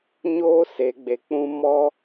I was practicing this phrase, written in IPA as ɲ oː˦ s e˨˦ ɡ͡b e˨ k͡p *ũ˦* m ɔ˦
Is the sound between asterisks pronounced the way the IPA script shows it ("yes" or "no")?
yes